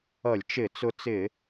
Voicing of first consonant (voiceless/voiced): voiced